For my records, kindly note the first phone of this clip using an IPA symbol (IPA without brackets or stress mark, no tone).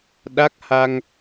ɗ